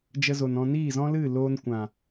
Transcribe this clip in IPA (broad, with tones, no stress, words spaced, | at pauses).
d͡ʒə˧zo˨nɔ̃˧ niː˦˨zɔ̃˦lɨ˦˨loː˧n kʷã˨